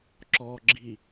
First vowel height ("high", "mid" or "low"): mid